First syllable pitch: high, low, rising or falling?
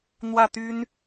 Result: falling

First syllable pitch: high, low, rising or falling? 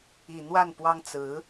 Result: low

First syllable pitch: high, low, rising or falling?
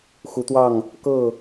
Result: rising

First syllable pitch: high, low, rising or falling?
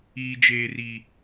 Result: high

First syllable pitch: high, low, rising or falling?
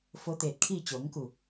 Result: rising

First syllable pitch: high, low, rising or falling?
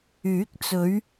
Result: rising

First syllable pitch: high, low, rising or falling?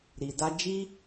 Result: low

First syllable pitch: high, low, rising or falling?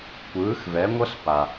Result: rising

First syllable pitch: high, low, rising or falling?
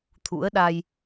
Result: rising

